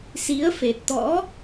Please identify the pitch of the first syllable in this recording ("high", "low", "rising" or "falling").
rising